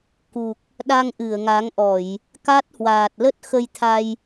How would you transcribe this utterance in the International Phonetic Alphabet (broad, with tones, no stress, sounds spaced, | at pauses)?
k u˨˩ k̚ | ɗ a˧ ŋ ʔ ɨ˧˩ ə̯ ŋ a˨˦ ŋ ʔ ɔ˧˩˨ j | k a˦˥ t̚ h w aː˨˩ t̚ l ə˦˥ t̚ x ə˧ j t̪ʰ a˧ j